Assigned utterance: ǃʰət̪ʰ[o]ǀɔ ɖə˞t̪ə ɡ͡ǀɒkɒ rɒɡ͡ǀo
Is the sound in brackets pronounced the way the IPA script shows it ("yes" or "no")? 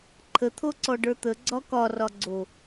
yes